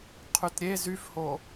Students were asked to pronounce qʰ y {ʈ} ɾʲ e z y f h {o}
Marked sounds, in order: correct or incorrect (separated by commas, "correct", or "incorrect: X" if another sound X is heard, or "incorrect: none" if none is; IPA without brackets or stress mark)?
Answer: incorrect: t, correct